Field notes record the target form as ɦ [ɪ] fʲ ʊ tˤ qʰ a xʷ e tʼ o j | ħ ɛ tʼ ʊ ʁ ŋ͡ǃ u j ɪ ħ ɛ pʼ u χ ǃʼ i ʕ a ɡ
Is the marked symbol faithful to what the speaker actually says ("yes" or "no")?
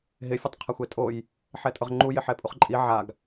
yes